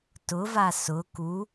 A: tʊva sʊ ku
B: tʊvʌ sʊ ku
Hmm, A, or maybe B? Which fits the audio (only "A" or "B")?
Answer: A